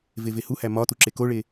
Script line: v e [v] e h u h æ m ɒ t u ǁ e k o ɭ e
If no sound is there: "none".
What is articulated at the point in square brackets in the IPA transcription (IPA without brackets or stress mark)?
v